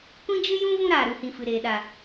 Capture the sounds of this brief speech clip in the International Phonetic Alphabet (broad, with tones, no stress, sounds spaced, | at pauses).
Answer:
kʷ ĩ˦ d͡ʒ ɨ˦ j ũ˦ v ũ˦ ɾ aː˨ ɾ u˧ h ĩ˨ f ɨ˨ ɾ eː˨ ɗ a˨